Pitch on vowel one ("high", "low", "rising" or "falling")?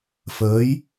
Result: rising